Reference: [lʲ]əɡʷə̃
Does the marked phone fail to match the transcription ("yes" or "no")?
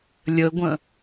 no